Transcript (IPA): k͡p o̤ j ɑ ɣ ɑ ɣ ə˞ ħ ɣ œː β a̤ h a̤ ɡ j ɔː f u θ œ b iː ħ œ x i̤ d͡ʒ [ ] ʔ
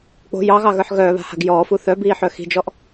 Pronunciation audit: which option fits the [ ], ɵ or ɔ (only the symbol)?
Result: ɔ